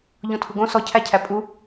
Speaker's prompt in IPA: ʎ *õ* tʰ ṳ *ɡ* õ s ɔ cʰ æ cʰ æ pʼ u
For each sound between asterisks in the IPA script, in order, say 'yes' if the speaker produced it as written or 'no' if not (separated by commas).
yes, yes